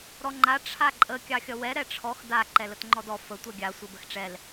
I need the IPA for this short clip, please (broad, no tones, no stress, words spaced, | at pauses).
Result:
ɾɔŋ͡ǃa ʈ͡ʂʰaǃʼə kʲɑxʲʌwɛ ɾɛʈ͡ʂʰɔx da ǃɛlətŋ͡ǃɔdɔ fə tʷʌɡʲa sʷʌbəxʈ͡ʂɛl